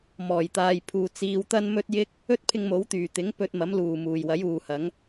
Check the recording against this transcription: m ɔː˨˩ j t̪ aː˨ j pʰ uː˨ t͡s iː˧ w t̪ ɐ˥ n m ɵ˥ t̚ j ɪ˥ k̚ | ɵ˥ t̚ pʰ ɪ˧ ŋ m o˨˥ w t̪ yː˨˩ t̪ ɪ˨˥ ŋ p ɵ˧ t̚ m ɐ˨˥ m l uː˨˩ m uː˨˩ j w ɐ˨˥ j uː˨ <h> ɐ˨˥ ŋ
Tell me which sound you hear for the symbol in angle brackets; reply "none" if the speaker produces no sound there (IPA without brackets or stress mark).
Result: h